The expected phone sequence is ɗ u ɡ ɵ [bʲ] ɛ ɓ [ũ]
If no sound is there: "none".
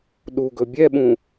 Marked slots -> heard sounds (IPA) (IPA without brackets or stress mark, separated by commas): bʲ, ũ